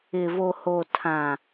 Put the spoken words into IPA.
ɪ˨ v o˨ h o˨ tʰ ã˨

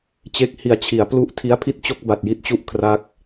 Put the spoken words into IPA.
t͡ɕ e˦˥ k̚ h i˨˩ a̯ t͡ɕʰ i˩˦ a̯ p l u˦˥ ʔ tʰ i˦˥ a̯ pʰ i˥˩ t̚ t͡ɕ o˥˩ k̚ b a˨˩ t̚ j i˦˥ t̚ t͡ɕ u˥˩ ʔ kʰ r a˦˥ k̚

